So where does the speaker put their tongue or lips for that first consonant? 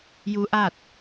palate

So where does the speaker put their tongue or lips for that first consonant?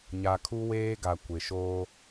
palate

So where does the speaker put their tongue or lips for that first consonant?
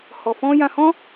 throat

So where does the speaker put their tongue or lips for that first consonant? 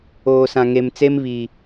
tongue tip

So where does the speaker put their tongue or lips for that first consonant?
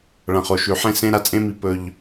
retroflex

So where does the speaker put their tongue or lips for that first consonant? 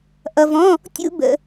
throat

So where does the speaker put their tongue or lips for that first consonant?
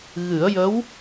velum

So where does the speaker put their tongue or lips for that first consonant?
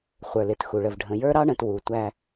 uvula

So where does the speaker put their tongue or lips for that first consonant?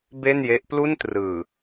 lips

